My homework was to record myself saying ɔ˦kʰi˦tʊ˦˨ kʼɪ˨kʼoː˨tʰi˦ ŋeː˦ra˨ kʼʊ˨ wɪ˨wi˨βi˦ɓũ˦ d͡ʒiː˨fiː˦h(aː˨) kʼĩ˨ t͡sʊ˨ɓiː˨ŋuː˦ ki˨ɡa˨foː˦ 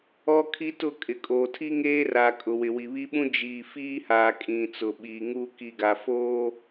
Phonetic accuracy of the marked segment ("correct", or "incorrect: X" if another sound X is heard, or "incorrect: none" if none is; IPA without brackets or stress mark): correct